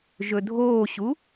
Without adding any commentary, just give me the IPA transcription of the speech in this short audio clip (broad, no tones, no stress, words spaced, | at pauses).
ʒɵdʱoːɕu